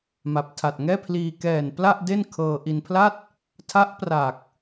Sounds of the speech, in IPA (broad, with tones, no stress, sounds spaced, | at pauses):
m a˨˩ p̚ tʰ a˨˩ t̚ ŋ ɛː˥˩ pʰ l iː˧ k ɛː˨˩ n p l a˥˩ ʔ d e˥˩ n kʰ ɤː˧ ʔ i˧ n pʰ l a˥˩ t̚ | tʰ a˦˥ ʔ p r a˨˩ k̚